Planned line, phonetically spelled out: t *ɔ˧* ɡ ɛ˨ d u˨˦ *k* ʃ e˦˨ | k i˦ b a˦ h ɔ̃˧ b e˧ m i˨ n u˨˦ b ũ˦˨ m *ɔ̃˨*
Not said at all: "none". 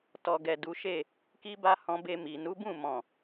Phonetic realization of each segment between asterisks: ɔ˨, none, ɔ̃˨

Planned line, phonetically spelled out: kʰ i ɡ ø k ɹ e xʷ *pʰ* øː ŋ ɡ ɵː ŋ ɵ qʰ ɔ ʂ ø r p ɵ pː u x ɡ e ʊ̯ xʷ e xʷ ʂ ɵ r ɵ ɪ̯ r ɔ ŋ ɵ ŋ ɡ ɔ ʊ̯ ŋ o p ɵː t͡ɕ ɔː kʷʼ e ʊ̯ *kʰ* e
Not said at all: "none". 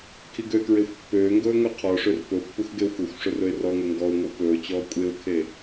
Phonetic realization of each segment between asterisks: pː, kʰ

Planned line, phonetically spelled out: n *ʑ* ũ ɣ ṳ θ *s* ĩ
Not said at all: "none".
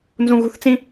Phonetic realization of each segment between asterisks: z, t͡s

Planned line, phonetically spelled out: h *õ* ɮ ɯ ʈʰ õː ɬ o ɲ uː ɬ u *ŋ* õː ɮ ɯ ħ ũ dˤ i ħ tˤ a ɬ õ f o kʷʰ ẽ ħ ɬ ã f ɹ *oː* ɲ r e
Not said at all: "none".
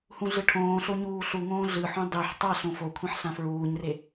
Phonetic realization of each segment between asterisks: ũ, ŋ, uː

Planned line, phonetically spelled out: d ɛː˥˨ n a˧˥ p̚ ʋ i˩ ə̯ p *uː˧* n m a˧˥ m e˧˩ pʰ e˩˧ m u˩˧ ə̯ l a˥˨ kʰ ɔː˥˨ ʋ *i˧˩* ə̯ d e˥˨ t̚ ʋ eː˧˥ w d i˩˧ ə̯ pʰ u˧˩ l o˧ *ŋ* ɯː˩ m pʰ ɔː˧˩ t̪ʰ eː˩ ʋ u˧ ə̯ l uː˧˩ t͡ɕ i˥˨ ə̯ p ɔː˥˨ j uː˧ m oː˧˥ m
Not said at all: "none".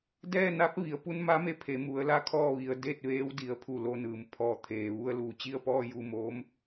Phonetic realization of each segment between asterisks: u˧, i˩˧, n

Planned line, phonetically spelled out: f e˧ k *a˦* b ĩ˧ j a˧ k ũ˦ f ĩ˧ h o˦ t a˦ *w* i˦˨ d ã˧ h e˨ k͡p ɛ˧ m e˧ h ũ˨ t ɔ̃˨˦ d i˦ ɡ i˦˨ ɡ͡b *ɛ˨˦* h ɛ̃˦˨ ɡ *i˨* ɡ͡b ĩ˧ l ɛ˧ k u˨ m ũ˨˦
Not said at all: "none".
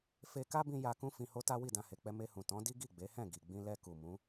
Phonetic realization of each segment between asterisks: a˦, w, e˨˦, i˨

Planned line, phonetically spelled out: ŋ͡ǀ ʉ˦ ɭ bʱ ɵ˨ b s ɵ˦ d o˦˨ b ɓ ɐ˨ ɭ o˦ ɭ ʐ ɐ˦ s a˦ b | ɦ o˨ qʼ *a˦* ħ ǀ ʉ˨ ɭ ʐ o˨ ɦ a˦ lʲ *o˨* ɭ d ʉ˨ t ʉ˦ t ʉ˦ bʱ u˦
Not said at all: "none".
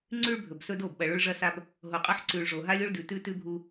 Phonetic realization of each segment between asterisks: ɐ˦, o˦

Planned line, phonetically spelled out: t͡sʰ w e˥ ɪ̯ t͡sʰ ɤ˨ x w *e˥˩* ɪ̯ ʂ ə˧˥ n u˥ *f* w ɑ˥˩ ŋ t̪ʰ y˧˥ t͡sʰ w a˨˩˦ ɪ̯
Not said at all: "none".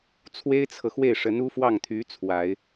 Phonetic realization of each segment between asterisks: e˥˩, f

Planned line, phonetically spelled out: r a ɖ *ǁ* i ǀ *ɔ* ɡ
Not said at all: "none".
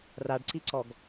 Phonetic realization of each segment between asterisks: ǀ, ɔ

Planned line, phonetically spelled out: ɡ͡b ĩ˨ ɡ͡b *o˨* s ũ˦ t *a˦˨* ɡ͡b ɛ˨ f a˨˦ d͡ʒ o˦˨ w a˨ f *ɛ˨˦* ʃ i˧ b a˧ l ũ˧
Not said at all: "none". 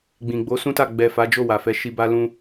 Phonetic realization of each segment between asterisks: o˨˦, a˦˨, ɛ˨˦

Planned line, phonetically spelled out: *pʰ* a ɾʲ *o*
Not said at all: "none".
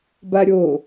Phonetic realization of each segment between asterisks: b, o

